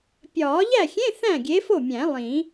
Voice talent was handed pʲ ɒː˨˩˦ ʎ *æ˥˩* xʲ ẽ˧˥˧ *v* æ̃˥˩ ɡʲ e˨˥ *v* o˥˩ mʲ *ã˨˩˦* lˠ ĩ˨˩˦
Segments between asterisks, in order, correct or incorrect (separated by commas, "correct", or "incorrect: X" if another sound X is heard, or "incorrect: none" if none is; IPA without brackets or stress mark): correct, incorrect: θ, incorrect: f, incorrect: æ̃˨˩˦